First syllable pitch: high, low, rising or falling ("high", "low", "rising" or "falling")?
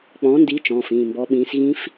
rising